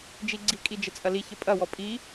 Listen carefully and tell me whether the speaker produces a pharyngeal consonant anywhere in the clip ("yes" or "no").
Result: no